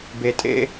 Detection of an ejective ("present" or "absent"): present